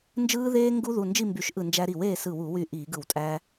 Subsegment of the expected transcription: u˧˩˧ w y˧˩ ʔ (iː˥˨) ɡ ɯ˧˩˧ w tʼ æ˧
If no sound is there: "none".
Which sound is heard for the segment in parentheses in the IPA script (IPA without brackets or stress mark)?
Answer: iː˧˩˧